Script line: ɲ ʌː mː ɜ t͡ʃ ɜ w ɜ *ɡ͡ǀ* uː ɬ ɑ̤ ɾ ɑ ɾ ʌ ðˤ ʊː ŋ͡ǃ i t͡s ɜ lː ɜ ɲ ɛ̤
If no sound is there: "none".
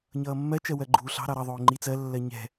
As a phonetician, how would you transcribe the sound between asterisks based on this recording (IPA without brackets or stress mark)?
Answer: ɡ͡ǃ